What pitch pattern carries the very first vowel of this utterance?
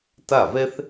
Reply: falling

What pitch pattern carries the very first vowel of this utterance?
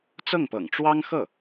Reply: falling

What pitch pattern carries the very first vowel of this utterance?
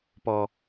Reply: high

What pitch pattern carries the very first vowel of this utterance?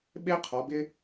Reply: high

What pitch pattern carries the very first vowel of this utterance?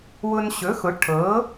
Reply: high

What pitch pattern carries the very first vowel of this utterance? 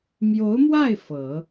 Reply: rising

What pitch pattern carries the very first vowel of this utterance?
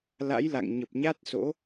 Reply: rising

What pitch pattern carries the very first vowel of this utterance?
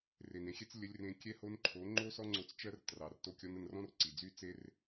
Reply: low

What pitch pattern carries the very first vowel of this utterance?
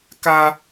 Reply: high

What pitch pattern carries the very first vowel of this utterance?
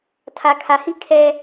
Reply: low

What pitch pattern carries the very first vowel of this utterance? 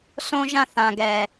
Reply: high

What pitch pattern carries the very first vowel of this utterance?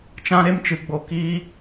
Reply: high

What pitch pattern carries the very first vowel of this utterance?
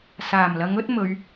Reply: low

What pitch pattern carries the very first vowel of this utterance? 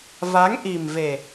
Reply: rising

